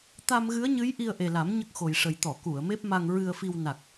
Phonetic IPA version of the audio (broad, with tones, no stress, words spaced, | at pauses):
t̪a˧mɣɨ˧˥ə̯ɲɨ˧˥j ʔi˧ə̯ʔe˨˩la˨˩˦m ɲə˦˥k̚xo˨˩jʂə˨˩j t̪ɔ˨˩˨ ku˨˩˨ə̯me˦˥p̚ma˧ŋ ɹɨ˧ə̯fi˧w na˨˩k̚